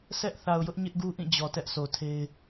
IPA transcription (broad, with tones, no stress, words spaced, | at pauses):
sɛ˦ʔ θa˨ʊ̯jʊ˦ʔ ɲɪ˦ʔɡu˦ʔĩ˦˨ d͡ʑɔ˨tɛ˦ʔsʰo˨tʰe˦ɪ̯